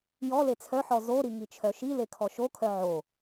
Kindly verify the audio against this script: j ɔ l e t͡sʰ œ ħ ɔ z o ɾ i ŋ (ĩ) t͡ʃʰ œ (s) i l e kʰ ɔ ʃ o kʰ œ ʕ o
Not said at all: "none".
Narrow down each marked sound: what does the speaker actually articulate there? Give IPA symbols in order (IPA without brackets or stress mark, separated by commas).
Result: i, ʃ